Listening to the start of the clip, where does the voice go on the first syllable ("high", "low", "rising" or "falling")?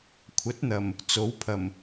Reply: rising